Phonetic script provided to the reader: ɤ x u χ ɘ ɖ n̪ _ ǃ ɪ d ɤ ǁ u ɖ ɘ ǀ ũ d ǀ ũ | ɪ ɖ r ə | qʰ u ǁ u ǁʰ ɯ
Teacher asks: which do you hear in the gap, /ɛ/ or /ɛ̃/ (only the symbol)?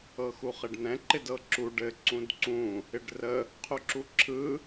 ɛ̃